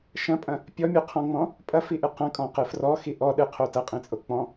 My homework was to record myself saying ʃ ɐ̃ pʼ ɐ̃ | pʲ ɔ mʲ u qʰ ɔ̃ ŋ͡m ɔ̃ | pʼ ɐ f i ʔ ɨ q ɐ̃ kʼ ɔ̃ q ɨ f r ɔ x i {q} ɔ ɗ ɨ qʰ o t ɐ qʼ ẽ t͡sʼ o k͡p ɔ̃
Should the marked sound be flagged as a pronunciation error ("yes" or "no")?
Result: yes